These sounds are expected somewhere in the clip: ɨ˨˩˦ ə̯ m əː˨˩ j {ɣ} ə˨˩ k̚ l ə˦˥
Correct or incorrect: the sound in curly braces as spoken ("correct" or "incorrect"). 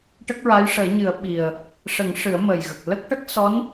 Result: correct